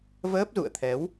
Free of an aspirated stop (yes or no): no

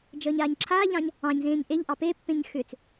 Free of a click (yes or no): no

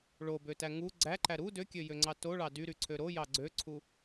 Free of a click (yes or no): no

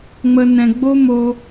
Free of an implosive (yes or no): yes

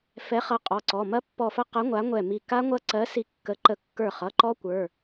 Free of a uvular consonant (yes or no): no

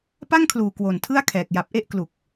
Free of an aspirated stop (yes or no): no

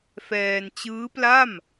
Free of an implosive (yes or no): yes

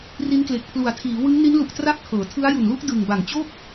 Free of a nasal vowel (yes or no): yes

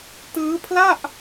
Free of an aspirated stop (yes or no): no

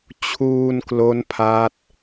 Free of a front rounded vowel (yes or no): yes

